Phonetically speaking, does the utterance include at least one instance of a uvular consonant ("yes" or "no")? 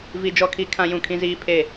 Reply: no